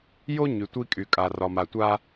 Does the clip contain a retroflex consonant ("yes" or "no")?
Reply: no